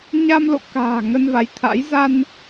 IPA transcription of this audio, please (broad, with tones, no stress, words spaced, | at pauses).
ɲa˧mlo̰˧˨ka̤ː˨˩ ŋə˧nva˨˦jt̪ʰa̰˧˥j za˧n